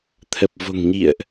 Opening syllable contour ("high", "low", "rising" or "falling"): low